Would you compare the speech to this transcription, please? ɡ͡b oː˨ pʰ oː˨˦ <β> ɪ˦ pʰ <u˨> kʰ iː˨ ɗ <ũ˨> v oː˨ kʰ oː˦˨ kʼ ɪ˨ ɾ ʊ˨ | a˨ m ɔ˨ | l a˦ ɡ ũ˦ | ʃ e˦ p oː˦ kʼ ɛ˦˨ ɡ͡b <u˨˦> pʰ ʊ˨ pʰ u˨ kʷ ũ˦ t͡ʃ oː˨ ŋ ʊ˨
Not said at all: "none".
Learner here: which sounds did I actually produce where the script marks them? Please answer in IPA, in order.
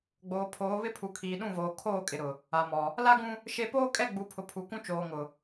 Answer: β, u˨, ũ˦˨, u˨˦

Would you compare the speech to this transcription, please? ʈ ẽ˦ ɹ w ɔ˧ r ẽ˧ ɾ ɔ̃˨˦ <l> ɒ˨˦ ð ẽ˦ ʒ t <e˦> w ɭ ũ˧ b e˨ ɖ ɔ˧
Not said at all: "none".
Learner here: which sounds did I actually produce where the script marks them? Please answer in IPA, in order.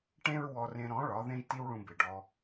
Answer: ɭ, i˦

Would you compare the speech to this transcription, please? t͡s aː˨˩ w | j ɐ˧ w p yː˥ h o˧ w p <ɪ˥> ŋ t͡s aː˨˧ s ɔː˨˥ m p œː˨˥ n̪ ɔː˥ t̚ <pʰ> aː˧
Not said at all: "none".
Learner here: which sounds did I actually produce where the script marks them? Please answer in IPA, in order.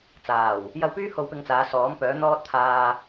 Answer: ɪ˧, t̪ʰ

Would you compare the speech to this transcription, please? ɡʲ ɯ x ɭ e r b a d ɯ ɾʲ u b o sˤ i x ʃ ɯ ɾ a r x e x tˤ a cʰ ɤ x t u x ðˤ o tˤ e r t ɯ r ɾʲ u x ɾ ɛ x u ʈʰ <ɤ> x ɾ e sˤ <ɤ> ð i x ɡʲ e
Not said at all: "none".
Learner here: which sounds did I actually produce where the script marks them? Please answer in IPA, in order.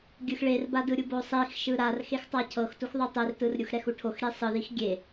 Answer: o, ɯ

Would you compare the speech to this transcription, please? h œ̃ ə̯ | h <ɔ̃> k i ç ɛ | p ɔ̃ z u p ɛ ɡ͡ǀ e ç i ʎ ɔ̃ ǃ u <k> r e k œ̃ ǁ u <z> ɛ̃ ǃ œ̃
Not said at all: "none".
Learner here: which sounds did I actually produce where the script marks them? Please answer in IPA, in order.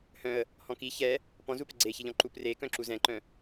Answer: ɔ̃, p, z

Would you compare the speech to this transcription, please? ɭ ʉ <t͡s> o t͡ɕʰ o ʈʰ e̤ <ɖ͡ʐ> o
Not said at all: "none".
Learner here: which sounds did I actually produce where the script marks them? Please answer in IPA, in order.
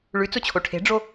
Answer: t͡s, ɖ͡ʐ

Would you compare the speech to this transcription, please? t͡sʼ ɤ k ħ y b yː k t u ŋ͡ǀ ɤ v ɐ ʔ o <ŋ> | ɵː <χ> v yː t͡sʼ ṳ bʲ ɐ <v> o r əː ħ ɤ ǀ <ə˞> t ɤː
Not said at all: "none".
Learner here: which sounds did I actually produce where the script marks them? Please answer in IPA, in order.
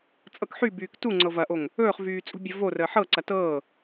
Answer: ŋ, χ, v, ɐ

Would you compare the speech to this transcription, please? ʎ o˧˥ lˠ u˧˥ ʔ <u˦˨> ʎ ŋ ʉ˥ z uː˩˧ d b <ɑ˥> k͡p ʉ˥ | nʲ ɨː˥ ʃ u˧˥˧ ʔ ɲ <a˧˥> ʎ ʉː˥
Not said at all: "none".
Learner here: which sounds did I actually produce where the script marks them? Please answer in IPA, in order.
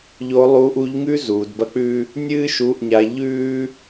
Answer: u˧˥, ɐ˥, a˧˥

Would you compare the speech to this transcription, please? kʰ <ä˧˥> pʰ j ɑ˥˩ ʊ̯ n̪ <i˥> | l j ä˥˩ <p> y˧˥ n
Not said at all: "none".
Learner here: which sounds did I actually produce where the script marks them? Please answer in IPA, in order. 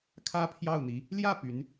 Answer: ä˥, i˧˥, p

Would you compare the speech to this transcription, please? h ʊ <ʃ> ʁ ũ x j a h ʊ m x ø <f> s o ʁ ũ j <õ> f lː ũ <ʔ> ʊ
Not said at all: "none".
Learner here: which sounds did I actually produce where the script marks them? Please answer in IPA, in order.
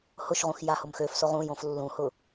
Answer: ʃ, f, õ, h

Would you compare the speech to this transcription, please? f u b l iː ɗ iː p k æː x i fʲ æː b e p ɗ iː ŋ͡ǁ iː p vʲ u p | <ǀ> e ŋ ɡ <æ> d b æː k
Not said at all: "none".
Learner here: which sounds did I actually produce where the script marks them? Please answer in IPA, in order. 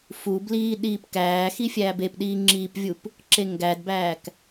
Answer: ǁ, æ

